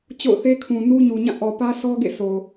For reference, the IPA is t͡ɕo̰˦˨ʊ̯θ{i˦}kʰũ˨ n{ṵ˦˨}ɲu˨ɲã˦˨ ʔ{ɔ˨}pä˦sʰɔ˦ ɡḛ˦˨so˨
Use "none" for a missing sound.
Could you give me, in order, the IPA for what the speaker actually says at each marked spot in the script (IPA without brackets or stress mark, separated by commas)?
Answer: e˦, u˦, ɔ˨